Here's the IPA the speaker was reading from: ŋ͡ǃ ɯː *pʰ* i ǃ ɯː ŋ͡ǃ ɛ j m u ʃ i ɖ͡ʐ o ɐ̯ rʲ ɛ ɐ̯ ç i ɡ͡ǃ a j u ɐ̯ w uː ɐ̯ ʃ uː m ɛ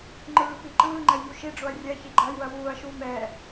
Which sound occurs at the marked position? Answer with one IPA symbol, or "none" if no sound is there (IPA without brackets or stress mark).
p